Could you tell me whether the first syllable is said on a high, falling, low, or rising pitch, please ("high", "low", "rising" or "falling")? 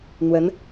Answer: rising